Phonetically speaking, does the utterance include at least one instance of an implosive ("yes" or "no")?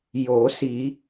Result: no